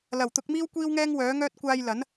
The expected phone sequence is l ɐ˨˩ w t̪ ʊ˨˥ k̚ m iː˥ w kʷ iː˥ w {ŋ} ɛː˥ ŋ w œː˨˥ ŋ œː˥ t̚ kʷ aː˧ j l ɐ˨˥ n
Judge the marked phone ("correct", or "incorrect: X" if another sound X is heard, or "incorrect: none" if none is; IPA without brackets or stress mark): correct